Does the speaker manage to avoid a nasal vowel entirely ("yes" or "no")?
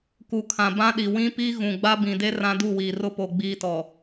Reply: no